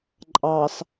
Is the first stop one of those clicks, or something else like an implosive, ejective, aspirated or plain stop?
click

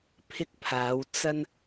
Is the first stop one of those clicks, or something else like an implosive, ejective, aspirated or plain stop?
aspirated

